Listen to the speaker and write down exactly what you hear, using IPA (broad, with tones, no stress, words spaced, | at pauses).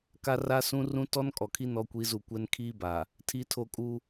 ka˦ra˦sũ˦ rũ˦tɔ˦n kʼɔ˨kʰi˦ nɔ˦kʷi˦zu˦˨ kʷɛ˦nkʰiː˦ba˨ | tʰi˦tʰo˦kʼu˦